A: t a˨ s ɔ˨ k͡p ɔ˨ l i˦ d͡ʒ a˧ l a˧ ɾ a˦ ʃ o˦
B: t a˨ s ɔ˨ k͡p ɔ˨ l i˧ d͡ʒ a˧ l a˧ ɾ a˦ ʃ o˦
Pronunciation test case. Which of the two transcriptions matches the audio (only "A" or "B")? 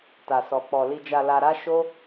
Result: B